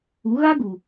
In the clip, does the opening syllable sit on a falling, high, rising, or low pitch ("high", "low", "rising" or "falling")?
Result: rising